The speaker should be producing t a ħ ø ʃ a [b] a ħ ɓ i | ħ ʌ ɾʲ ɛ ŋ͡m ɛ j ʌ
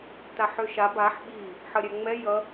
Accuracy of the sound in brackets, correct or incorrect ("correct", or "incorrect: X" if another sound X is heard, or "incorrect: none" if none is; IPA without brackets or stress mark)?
correct